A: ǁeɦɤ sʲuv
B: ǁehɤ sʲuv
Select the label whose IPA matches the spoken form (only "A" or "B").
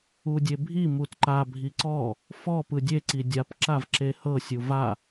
B